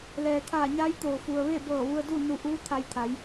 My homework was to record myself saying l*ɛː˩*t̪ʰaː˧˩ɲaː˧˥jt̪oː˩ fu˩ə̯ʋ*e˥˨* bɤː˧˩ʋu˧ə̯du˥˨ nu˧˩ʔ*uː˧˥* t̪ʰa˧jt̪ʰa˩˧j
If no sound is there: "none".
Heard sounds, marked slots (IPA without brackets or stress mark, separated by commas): ɛː˩, e˥˨, uː˧˥